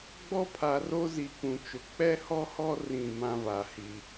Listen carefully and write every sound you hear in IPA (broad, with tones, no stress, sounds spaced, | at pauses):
ɡ͡b ɔ˦ pʰ a˨ r o˦ z i˨ k ũ˨ t͡ʃ ʊ˨ k͡p ɛ˦ h ɔ˦ h ɔ˦ r ĩ˦˨ m ã˦ v a˨ h i˦